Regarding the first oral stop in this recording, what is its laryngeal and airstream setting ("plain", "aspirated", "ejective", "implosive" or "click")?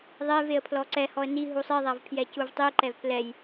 aspirated